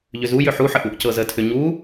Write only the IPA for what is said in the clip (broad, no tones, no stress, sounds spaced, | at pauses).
ʎ ʏ z u j ʏ ħ u ħ ə ʔ u ʔ c ɤ z ə tʰ ʏ ɲ u